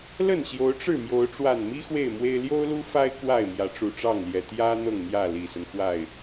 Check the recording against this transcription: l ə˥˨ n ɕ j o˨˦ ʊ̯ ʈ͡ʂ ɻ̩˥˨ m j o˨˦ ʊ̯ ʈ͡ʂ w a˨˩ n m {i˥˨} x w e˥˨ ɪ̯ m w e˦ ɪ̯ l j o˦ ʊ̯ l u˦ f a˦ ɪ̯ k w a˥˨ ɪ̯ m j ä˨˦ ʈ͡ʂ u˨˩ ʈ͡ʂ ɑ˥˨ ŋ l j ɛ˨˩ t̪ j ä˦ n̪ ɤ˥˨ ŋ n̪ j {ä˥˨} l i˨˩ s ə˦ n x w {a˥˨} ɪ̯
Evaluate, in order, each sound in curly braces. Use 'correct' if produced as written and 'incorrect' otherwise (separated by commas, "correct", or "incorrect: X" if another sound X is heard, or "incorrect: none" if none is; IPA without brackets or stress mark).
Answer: incorrect: i˦, correct, correct